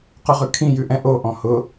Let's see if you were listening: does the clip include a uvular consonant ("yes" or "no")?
yes